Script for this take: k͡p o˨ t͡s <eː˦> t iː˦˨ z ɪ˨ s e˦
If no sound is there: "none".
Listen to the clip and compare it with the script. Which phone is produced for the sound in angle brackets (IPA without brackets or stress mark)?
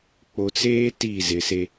eː˦